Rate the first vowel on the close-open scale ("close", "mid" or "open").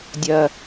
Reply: open